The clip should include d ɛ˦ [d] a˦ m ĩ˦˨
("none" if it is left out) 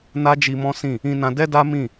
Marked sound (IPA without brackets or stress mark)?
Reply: d